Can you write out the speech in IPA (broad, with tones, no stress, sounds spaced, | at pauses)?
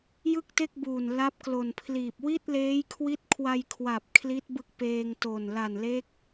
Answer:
j ɯ˥˩ k̚ t e˥˩ k̚ b uː˨˩ n l a˦˥ p̚ k l o˨˩ n pʰ l iː˨˩ p̚ w i˥˩ t̚ l eː˦˥ j kʰ w i˦˥ t̚ kʰ w a˧ j kʰ w a˨˩ p̚ kʰ l i˦˥ t̚ b ɯ˦˥ k̚ p eː˧ ŋ t o˨˩ n l a˨˩ n l e˦˥ k̚